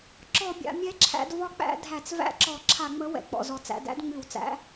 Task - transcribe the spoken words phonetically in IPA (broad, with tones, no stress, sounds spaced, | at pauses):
ǁ ɔ˧˩˧ bʲ a̰˩˧ mʲ ɛ˨˥ ǁʰ æ̰˩˧ d v ɒ˨˥ k͡p æ̰˧˩˧ dʱ æ˧˩˧ t͡s v æ̰˦˥ ǁ ɔ˧˩˧ ǁʰ a˧˩˧ ŋ͡m ə˨˥ w ɛ̰˩ k͡p ɔ̰˩ z ɔ˩ t͡s æ̰˩˧ d æ̰˦˥ d ŋ͡m ʉ˧˩˧ w t͡s æ̰˨˥